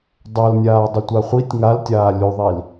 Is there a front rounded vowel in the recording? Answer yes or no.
no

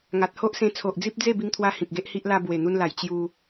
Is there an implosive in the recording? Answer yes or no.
no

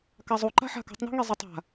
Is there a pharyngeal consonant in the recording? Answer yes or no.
yes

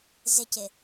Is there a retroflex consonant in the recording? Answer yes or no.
no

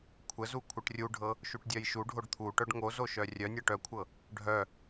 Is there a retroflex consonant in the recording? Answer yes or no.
yes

